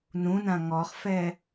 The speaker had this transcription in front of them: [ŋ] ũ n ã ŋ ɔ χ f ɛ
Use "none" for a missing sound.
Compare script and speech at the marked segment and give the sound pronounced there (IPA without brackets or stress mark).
n